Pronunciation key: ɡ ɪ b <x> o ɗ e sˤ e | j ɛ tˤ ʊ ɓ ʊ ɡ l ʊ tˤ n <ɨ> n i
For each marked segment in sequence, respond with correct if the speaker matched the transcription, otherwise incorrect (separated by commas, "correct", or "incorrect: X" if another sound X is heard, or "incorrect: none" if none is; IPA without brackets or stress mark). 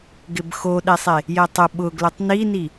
correct, incorrect: i